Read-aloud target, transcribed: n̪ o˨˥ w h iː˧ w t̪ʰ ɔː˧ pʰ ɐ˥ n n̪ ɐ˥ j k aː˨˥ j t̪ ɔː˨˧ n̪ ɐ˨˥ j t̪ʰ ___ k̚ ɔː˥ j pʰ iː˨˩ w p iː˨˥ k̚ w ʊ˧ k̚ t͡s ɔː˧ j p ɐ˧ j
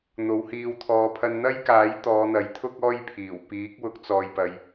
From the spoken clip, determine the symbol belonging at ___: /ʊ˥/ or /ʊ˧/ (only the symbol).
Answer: ʊ˥